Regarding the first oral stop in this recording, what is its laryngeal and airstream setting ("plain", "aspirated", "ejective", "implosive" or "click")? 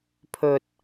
aspirated